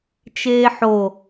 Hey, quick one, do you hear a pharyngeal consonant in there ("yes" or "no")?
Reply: yes